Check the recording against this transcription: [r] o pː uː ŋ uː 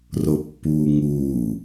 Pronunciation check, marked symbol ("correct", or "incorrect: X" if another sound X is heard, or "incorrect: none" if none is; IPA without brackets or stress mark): correct